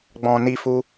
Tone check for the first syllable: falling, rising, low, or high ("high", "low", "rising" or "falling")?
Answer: low